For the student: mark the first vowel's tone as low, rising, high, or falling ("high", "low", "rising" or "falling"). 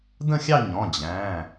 falling